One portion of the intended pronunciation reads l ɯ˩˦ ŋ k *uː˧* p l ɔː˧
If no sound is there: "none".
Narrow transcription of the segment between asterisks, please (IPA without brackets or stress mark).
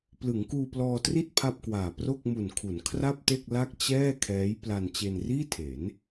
uː˧